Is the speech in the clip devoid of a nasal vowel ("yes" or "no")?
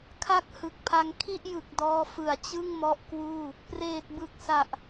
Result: yes